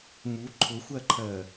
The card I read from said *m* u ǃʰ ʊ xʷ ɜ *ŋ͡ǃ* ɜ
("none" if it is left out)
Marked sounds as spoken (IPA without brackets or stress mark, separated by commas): m, ǃʰ